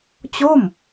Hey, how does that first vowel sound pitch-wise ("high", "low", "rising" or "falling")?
falling